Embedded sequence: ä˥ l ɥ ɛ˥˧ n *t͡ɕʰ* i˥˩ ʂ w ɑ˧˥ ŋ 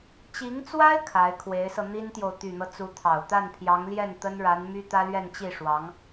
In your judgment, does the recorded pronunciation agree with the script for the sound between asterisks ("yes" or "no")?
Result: no